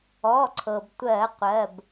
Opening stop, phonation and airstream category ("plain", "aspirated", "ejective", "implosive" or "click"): click